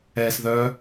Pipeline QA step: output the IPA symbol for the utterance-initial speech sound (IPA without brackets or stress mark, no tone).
ɛː